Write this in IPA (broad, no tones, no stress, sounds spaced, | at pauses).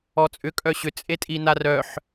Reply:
ɔ t͡sʼ ʏ kʼ œ ɕ ʏ t͡sʼ e tʼ i n a r œ ħ